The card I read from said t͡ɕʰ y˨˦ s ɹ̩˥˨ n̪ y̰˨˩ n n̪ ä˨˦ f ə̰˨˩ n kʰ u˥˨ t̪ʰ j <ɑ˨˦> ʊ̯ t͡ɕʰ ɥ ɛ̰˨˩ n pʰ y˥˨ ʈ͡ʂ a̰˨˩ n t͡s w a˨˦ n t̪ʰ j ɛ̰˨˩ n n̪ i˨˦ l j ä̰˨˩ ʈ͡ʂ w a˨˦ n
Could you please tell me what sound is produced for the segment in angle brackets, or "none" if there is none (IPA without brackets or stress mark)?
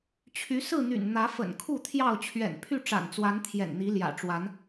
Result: ɑ˥˨